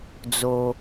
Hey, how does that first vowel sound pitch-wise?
low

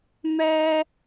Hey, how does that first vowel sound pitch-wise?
high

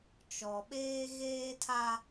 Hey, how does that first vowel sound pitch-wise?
low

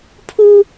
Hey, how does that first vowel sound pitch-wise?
high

